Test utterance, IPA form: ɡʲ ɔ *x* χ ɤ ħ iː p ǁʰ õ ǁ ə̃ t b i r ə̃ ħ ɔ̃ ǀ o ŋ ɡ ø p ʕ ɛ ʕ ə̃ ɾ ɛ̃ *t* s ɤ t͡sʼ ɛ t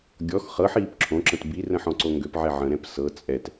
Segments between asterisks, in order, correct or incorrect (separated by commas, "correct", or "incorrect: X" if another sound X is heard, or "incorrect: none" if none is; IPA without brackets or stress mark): correct, incorrect: p